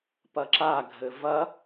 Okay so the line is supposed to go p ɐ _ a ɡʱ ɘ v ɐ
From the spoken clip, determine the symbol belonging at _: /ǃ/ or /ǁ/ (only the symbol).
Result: ǁ